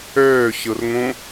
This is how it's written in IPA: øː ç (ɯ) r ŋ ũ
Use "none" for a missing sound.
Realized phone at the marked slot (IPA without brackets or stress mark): ɯ